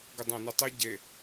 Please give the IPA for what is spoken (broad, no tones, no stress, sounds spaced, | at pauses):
ɡ ə dˤ æ̃ n ɘ tˤ ɘ ɟ e